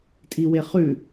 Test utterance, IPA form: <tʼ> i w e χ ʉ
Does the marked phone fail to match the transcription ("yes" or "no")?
no